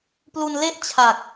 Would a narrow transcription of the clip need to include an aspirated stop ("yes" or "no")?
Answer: yes